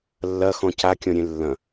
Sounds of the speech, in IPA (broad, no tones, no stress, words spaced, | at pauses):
lːɐxɔ̃ cakʲɔ̃ɾʲẽ lːɐ̃